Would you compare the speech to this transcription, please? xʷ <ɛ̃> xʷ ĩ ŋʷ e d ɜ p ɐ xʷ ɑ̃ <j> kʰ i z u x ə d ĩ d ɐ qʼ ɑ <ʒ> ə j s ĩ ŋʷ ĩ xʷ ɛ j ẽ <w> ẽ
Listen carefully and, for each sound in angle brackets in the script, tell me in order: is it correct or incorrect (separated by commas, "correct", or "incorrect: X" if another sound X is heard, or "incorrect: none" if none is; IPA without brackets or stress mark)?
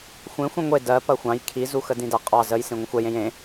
incorrect: ẽ, correct, incorrect: z, incorrect: j